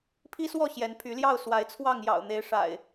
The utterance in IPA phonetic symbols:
pʰ i˦ s w ɔ˥˨ ɕ j ɛ˨˦ n pʰ y˨˦ l j ɑ˥˨ ʊ̯ s w a˨˦ ɪ̯ t͡sʰ w ɑ˥˨ ŋ j ɑ̰˨˩ ʊ̯ n̪ e˨˦ ɪ̯ ʂ a̰˨˩ ɪ̯

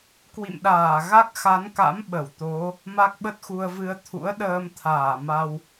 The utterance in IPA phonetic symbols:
k w ḭ˧˨ m ɗ aː˧˩ ɣ a˦˥ k̚ x a˨˦ n k a̰˧˥ m ɓ ə˧˩ w t̪ o˨˦ | m a˦˥ k̚ ɓ ə˦˥ t̚ x u˧ ə̯ v ɨ˧ ə̯ t̪ʰ ṵ˧˥ ə̯ ɗ əː˧ m t̪ʰ aː˧˩ m a˧ w

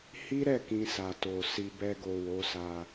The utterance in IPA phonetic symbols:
h i˦ ɾ ɛ˦˨ k ĩ˧ s a˨ t o˨ s i˧ b ɛ˧ ɡ o˨ w o˨˦ s a˧

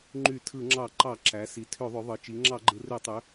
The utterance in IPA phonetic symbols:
ŋ͡ǃ y˧˩˧ tʰ ɯ˧˩˧ ŋ͡ǁ ɑ˧˩˧ ǃ ɑ˧˩˧ ǁ æ˩˧ s i˩˧ tʰ ø˧˩˧ ðˤ ø˩˧ ðˤ ɯ˩˧ t͡ʃ i˩˧ ŋ͡ǁ ɑ˧˩˧ ɡ͡ǃ ɯ˩˧ r ø˧˩˧ tˤ ø˩˧

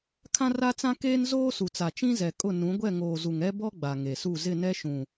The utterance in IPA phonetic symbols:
kʰ ã˦ r a˦ t͡s ã˦ k eː˦ n z oː˦ s u˨ t͡s a˨ t͡ʃ ĩ˦ z ɛ˨ kʼ ʊ˦˨ n ũ˨˦ ɡʷ ɛ˦˨ ŋ oː˨ z u˨ ŋ ɛ˦ b ɔ˦ ɡ͡b a˨ ŋ e˨ s u˦˨ z ɪ˦˨ n ɛ˦ ʃ ũ˨

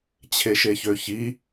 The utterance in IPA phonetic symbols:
t͡ɕʰ e ʃ e ç ø ç i

